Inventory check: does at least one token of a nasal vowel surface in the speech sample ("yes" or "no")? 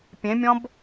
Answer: yes